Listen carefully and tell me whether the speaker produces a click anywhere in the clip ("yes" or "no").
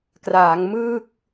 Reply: no